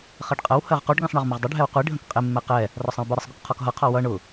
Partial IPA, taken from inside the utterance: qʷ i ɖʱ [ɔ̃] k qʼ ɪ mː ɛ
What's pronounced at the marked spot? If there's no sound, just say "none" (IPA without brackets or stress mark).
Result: ə̃